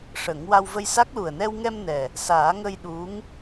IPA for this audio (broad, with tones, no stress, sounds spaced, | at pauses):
ʂ ə˨˩˦ ŋ w a˧ w v ə˧ j s a˦˥ k̚ l u˨˩ ə̯ n ɛ˧ w ŋ ɛ˧ m n ɛ˨˩ | s aː˨˩˦ ŋ ə˧ j ɗ u˧˥ ŋ